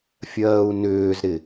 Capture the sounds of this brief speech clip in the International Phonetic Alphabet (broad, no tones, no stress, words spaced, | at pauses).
fʲɜːu̯nʏːzɾɪ